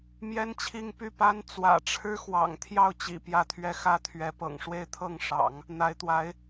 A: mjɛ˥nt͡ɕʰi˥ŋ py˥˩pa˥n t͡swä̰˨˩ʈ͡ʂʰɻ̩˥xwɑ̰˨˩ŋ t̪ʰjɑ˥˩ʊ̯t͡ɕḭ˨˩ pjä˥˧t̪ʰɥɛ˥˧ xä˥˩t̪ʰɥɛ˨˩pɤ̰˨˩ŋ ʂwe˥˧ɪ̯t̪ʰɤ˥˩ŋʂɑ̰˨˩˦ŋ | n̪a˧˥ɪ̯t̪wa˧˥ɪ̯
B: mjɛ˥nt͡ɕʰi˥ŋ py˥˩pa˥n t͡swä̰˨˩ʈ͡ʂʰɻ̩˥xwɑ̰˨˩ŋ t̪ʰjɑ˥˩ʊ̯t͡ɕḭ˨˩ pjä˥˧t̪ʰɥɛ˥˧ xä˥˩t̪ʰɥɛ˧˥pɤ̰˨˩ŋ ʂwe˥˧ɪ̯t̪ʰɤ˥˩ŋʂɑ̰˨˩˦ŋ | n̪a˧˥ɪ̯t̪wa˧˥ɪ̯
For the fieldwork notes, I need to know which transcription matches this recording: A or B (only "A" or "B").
B